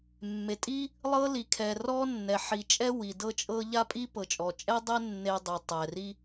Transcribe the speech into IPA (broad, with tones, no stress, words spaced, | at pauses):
mːe˩tʼi˥ | lˠɤ˥li˩kʰɛ˩ rɔ˥nːɛ˩ ħi˩t͡ʃʼɛ˥ wi˩dɤ˥t͡ʃʼɤ˥ ʎa˥pʼi˥ pɤ˩t͡ʃʼɔ˩ t͡ʃʼɛ˥dˤɛ˥ nːe˥dˤi˩tˤɛ˩ ri˥